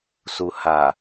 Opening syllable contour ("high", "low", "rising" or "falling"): low